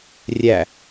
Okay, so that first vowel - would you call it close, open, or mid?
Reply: open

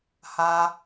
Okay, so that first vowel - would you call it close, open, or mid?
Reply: open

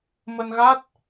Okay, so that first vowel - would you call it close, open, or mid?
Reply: mid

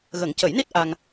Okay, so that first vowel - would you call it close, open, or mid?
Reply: mid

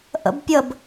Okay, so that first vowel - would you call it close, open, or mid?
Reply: mid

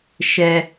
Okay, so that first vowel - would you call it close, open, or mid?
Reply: mid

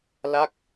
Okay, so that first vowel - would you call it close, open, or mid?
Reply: open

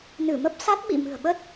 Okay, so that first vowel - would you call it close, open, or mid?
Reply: close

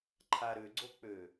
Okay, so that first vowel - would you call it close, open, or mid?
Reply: open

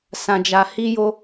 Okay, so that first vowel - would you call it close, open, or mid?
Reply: open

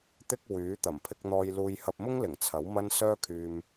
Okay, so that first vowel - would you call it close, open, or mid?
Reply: close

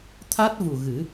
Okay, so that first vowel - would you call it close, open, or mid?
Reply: open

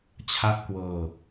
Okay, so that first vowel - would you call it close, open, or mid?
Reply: open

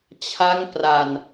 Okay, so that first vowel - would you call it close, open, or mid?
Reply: open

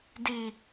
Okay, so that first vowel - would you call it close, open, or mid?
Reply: close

